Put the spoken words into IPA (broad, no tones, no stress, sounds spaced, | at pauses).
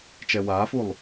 t͡ʃ ɛ w aː f u lˠ